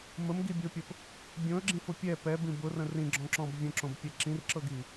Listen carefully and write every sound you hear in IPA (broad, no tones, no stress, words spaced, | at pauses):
məmɡibʲopʲəp | bʲõə̯ɡ͡ǁĩfʊ pʲɛ pɛbĩ bʊrə̃ rĩɡ͡ǁɔ̃ǁɔ̃b vʲə̃ǁõbpʲɛ ǁĩrǁɤɡi